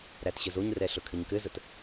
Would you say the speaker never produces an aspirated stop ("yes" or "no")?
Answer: no